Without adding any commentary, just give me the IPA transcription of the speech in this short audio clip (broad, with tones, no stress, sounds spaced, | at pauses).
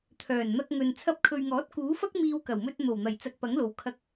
t̪ʰ œː˨˩ n n̪ ɐ˧ k̚ ŋ ɵ˨ n t͡sʰ ɐ˧ p̚ kʰ ɵ˨ ɥ ŋ ɔː˨˥ t̚ k uː˨˥ f ɐ˥ k̚ m iː˧ w k ɐ˨˩ w m ɵ˧ t̚ n̪ o˨˩ w n̪ ɐ˨˩ j t͡s ɐ˧ k̚ p ɐ˨˥ ŋ l o˨ w kʰ ɐ˧ k̚